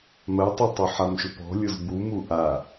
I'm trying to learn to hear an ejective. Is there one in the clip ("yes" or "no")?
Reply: no